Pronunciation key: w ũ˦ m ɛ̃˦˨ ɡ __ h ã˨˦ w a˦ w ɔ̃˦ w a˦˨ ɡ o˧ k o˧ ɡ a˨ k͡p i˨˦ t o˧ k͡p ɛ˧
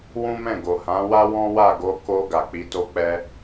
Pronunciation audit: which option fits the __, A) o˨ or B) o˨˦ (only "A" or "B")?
A